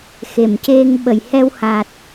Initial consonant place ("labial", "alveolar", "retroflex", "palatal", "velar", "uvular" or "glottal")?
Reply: velar